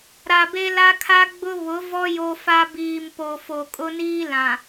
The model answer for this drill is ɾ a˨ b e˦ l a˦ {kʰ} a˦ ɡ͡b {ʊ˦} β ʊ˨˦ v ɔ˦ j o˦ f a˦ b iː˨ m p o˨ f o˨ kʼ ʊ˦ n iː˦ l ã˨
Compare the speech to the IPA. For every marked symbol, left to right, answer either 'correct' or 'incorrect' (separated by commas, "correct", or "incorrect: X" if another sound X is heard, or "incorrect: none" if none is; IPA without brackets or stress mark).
correct, correct